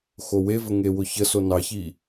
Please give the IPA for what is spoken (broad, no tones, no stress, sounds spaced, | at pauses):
x o w e v ə ŋ e w ʊ ç ə s o n ɑ ç i